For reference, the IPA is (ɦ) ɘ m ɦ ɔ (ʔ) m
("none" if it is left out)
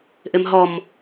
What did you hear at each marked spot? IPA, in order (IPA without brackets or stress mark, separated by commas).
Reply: ʔ, none